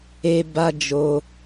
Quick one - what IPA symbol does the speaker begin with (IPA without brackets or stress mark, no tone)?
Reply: e